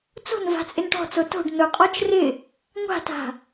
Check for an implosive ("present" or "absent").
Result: absent